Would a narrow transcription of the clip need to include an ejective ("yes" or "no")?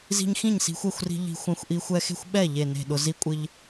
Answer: yes